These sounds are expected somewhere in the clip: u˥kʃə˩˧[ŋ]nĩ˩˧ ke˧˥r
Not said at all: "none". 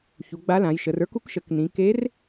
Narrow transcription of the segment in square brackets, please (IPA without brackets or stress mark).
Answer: k